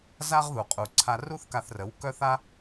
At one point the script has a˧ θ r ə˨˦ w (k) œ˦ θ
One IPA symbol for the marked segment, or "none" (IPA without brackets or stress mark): k